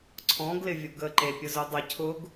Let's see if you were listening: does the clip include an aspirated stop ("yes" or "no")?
yes